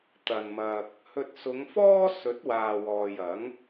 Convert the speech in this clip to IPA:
t̪ ɐ˨ n m ɐ˧ k̚ | h ɵ˧ t̚ s ʊ˨˧ ŋ f ɔː˥ s ɵ˨˥ t̚ w aː˨ w ɔː˨ j ɐ˨˥ ŋ

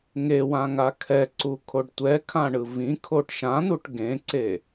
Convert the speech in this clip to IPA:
ŋ e w ã ŋ a kʰ ɛ ǀ u kʰ o ɖ tʷ ɛ kʰ ã ɳ ɯ v ĩ kʰ o ʈ ʃ ã n̪ u ʈ ɡ ẽ ǀ e

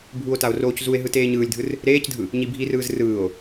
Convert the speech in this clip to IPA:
bʱ u o̯ t a o̯ r oː c z u e̯ ɦ ɯ t eː ɲ ɯː lʲ dʱ ɯ r | ɾ eː c dʱ ɯ | ɲ i bʱ i r ɯː z r ɯː o̯

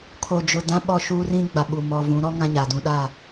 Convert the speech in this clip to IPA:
kʰ o˨ d͡ʒ ʊ˨ d ã˦ ɓ ɔ˦˨ ʃ uː˦ r ĩ˦ ɡ͡b a˨ ɓ u˨ m ɔ˨ v ũ˨˦ ɾ ɔ˦ ŋ ã˦ ɲ a˨ d ũ˦ ɗ a˦˨

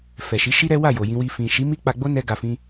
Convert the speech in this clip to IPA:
f ɛ˨ ʃ i˨˦ ʃ i˦ ɾ ɛ˦ w a˦˨ j o˨ j ĩ˧ w i˧ f ĩ˨ ʃ i˨˦ m i˦ k͡p a˧ ɡ͡b o˦ n ɛ˦ ɡ a˧ f ĩ˦

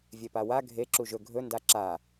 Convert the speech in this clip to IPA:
vʲ e p a w a ɡʱ e ǁ u ʒ ɵ ɡʱ ɵ n d a ǁ a

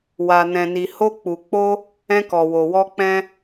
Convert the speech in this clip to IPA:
w a˨ n ɛ̃˨ n i˨ h o˧ k͡p u˨ k͡p o˧ | ɛ̃˧ k ɔ˨ w o˨ w ɔ˧ k͡p ɛ̃˧

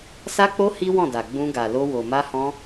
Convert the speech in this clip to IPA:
s a˧ k͡p o˧ h i˦ w ɔ̃˦˨ d a˨ ɡ͡b ũ˧ ɡ a˨ l o˧ w o˨ m a˧ h ɔ̃˧

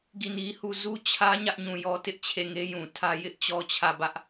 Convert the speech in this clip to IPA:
ɡ i˦˨ n i˦ h u˦˨ z u˦ t͡ɕʰ ä˦ ɲ ä˦ ʔ ɲ ũ˨ j ɔ˦ t ɪ˦ ʔ t͡ɕʰ e˦˨ ŋ e˦ j ũ˨ tʰ ä˦ j ɪ˦ ʔ t͡ɕ ɔ˦ t͡ɕʰ ä˦˨ b ä˦ ʔ

